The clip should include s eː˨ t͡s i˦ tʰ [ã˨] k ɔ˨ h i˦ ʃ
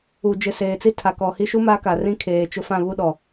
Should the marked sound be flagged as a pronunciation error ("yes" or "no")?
yes